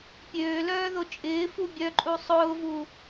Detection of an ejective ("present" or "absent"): present